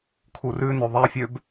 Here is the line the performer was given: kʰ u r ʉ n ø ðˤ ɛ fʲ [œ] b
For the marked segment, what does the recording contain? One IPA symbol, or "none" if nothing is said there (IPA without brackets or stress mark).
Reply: ø